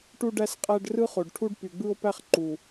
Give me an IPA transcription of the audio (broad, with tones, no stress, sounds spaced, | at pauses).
ʈ u˦ ɖ æ˦ s qʼ æ˦ ɖ r ɯ˦ χ o˨ ɖ ʈʰ u˦ ɖ p y˨ ɡ͡b ɯ˦ o̯ p æ˦ χ ǃ u˨